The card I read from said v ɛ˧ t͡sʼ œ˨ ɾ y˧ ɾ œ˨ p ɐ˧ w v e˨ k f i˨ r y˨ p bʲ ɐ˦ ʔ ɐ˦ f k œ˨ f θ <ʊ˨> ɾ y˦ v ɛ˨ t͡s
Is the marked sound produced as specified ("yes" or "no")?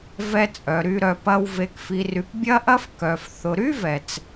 yes